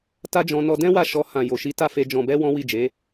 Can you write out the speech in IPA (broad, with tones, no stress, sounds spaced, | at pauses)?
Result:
t a˦ d͡ʒ ɔ̃˧ n ɔ˧ d ɛ̃˦ w a˦˨ ʃ ɔ˧ h ã˨ j o˨ ʃ i˨˦ t a˦˨ f e˧ d͡ʒ ɔ̃˨ b ɛ˧ w ɔ̃˦ w i˦˨ d͡ʒ e˨˦